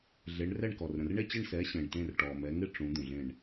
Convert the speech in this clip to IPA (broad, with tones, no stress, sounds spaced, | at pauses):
ɮ e˨˥ ɳ r ɛ˥˨ ɳ k ɔ˨ r ɾ ə̃˨ r ɳ e˥˨ t͡ɕ ɪ˥˨ ɳ s ɛː˨˥ ɕ ẽ˨ ɳ t ẽ˥˨ r ʈ ɔː˨ m ɛ˨˥ ŋ ɪ˥˨ ʈ͡ʂ ũ˨˥ d̪ ũ˨ ɮ ẽ˥˨ ɳ